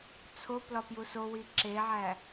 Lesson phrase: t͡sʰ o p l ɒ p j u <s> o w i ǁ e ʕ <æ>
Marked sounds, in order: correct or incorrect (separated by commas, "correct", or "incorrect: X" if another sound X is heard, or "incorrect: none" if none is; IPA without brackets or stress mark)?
correct, correct